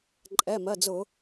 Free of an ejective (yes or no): no